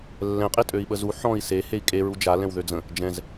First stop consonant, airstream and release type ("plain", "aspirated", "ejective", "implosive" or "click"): ejective